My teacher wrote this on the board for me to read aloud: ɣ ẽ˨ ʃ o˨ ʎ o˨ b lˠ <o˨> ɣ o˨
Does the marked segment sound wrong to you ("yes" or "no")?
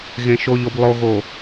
no